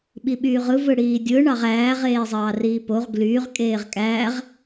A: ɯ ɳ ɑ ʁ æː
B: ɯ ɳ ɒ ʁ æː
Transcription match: A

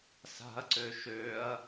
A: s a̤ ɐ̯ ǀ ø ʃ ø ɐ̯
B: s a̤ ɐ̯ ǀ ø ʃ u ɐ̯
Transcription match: A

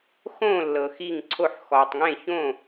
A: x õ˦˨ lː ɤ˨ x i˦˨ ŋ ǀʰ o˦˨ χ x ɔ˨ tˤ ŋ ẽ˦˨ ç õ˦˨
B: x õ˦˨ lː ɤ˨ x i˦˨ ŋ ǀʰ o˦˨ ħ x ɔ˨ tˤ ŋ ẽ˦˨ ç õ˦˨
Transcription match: B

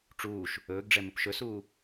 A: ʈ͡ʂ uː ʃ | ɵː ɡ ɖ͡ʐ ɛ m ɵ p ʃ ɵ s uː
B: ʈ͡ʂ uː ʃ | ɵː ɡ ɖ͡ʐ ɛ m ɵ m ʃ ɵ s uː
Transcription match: A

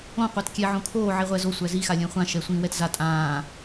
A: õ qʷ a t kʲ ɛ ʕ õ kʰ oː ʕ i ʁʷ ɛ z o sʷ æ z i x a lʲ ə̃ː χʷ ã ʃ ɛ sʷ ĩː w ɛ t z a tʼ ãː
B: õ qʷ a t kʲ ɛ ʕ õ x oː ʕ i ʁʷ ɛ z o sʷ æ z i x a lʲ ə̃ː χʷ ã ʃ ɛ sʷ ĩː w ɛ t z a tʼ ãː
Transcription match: A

